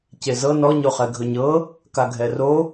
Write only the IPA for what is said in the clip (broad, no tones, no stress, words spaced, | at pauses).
cezɤ nɔɲoχɛ ɡʱɵɲɤ | kaɡʱɛro